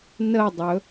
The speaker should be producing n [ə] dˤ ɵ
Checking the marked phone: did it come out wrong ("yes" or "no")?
no